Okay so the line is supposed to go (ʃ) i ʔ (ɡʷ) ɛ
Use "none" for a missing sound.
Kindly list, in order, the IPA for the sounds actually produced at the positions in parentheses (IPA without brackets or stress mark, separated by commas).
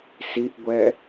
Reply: s, ɡʷ